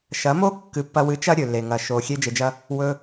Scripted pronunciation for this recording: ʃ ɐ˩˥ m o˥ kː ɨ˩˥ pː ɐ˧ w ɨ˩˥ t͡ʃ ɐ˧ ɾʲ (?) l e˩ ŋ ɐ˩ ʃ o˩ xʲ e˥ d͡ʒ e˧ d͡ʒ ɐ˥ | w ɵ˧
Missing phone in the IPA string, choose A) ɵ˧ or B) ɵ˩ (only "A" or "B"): B